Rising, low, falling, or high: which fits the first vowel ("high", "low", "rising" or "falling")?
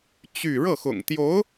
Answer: falling